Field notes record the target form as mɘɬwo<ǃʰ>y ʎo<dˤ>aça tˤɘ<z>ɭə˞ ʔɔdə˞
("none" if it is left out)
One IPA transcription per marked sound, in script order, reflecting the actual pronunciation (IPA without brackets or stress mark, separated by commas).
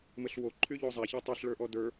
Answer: ǃʰ, zˤ, ɬ